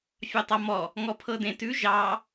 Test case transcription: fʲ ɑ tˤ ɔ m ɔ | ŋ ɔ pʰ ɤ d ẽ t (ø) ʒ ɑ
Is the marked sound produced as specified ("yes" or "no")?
no